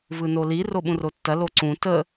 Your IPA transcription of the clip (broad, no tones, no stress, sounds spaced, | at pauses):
v ɯ n o l i r o ɓ ũ r o tː ɐ l o ǀ ũ t ə